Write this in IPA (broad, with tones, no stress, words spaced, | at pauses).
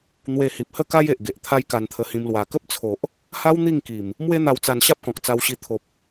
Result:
n̪we˧hi˨p̚ hə˥˧ka˦je˨ʔɡe˨ʔ t̪ʰa˦jka˧nt̪ʰə˧hĩ˧m lwa˨˩kə˦p̚t͡sʰo˨ʔ | ha˦w n̪i˥˧ŋki˨˩m | mwe˦n̪a˧wt͡sa˧n ɕa˦p̚kɔ̃˨k̚t͡sa˧wɕi˧ t̪ʰo˨p̚